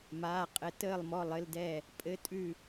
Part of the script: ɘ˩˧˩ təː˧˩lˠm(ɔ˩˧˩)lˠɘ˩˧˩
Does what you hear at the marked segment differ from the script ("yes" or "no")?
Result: no